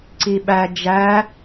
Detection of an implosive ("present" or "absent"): present